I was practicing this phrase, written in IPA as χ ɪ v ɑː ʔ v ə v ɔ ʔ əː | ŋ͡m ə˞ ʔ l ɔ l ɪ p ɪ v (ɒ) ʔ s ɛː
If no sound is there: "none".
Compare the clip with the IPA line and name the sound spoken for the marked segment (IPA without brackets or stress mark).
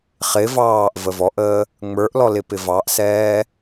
ɑ